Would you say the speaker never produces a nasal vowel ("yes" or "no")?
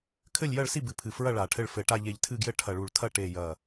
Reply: yes